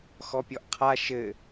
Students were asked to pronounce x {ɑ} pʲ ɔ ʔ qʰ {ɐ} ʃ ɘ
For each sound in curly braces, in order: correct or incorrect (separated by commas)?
incorrect, incorrect